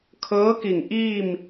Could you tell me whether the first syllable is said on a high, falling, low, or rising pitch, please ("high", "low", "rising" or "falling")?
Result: rising